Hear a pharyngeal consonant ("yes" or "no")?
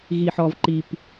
yes